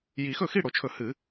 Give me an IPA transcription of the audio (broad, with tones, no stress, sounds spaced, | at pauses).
j i˨˩˦ x ɵ˥˩ x i˥˩ ɽ o˨˩˦ t͡ʃʰ ɵ˨˩˦ h ɨ˨˩˦